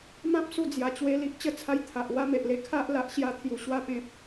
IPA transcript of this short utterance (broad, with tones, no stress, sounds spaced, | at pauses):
m ã˦ p̚ s u˧ d͡z j a˨˩ t͡ɕ w e˧ l i˦ ʔ t͡ɕ ə˧ t͡sʰ a˧ j t̪ʰ a˨ ʔ w a˦ m e˨ ʔ l e˦ kʰ a˦ ʔ l a˦ ʔ ɕ j a˥˧ t̪ʰ j u˧ ɕ w a˥˧ p ẽ˦ p̚